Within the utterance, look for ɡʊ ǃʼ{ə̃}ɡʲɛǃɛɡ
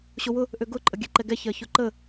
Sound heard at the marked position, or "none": ə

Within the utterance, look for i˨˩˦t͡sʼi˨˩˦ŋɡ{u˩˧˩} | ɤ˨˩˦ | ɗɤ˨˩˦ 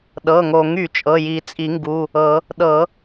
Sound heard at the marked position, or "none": u˩˧˩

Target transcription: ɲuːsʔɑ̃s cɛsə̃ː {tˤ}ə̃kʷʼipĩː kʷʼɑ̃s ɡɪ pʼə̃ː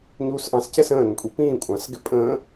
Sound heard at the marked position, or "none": n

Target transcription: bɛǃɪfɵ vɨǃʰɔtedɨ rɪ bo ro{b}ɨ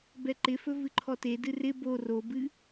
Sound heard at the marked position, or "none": b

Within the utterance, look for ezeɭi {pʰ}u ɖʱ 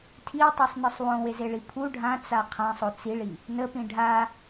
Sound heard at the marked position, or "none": pʰ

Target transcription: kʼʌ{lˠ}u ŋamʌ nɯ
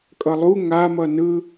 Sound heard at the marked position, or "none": lˠ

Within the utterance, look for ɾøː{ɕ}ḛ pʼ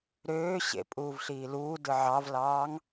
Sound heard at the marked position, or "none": ɕ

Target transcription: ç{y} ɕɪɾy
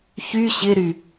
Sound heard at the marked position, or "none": y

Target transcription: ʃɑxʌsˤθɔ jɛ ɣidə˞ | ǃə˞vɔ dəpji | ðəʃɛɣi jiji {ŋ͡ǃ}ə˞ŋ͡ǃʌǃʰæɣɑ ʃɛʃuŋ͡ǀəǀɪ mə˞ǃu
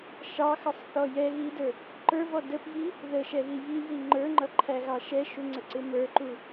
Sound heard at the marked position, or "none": ŋ͡ǃ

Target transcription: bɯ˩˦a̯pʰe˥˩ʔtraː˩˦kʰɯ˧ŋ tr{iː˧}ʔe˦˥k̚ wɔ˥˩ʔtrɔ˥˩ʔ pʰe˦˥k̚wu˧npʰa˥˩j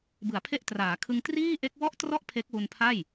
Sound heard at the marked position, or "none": iː˥˩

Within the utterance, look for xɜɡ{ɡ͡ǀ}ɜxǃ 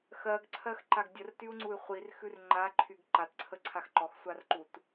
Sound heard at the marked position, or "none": ǀʰ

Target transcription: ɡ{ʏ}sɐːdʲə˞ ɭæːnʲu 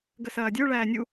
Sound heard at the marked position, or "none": ə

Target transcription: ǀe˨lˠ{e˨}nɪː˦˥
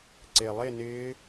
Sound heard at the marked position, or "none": e˥˧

